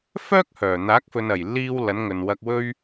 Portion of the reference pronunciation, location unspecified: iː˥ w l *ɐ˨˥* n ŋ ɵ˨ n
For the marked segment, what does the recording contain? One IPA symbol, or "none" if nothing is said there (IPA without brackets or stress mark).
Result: ɐ˨˥